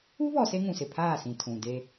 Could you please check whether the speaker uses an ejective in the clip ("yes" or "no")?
no